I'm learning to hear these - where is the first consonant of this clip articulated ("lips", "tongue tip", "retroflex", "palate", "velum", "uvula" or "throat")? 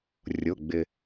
tongue tip